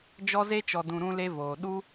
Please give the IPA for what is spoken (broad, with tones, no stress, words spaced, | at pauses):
d͡ʒɔ˧ze˧t͡ʃɔ˨dũ˨ ɾũ˧le˧voː˨ ɗu˦